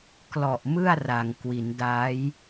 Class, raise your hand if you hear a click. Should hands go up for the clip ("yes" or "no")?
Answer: no